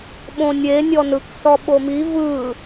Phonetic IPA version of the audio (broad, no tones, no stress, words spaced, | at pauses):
ɓõnʲe nʲɔnɯksɔ ɓomi vɯ